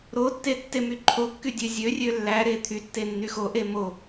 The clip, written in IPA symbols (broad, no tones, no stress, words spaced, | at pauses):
ɾotːe tːemyǃʰokːy dʲøzʲørʲø lːæɾe t̪ʰytːe nːyxoʔe mo